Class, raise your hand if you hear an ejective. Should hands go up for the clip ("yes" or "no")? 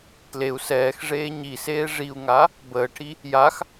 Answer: no